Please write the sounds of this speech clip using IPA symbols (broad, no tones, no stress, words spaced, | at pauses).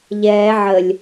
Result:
ʎɛː ʕəlʲ